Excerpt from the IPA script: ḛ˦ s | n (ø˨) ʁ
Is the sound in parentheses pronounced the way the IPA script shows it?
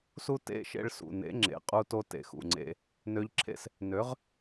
no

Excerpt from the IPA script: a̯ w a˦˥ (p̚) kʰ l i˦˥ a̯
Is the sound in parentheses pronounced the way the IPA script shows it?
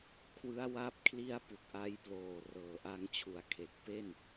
yes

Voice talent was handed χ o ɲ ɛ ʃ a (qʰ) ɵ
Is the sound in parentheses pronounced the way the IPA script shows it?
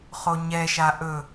no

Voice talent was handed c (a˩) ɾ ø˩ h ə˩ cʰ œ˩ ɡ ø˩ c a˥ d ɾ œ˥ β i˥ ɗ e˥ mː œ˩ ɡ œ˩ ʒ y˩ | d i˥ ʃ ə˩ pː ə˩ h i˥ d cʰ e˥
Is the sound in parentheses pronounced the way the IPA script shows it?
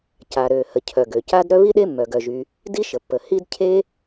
yes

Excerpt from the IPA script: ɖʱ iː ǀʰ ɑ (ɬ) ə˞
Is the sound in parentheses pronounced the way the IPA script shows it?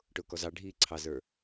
no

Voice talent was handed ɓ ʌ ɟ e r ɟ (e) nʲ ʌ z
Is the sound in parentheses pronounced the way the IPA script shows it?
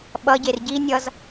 no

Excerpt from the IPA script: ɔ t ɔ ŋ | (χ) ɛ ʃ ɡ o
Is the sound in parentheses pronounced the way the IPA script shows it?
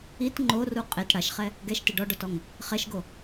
yes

